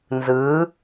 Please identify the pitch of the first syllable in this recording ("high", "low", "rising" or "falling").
rising